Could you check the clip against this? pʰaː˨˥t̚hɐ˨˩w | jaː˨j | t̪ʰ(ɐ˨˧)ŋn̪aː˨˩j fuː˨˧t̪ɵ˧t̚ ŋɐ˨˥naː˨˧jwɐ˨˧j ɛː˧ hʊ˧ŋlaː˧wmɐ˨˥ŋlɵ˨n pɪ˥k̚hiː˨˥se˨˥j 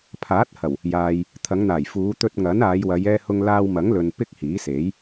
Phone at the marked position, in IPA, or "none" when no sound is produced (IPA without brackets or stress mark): ɐ˨˧